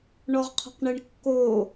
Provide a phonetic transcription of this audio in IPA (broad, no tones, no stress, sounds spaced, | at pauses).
ɳ ɔ ʁ qʰ ɔ̤ q ɳ ɛ ɳ kː o